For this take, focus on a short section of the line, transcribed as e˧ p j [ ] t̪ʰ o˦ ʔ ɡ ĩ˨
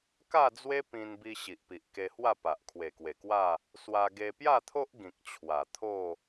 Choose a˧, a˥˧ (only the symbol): a˥˧